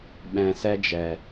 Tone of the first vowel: low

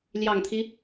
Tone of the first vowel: low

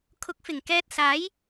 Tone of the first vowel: rising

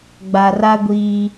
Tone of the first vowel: low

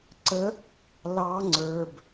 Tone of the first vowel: rising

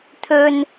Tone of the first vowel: low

